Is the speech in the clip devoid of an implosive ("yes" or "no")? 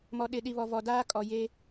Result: no